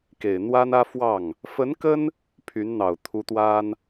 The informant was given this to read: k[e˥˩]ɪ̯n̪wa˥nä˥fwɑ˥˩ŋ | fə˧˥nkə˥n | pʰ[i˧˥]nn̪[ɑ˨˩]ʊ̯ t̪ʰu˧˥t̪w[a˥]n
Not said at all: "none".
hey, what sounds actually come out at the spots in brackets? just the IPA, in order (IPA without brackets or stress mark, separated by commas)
e˨˩, y˧˥, ɑ˨˩, a˥